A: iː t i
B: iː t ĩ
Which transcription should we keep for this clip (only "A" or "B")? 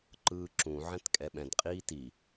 A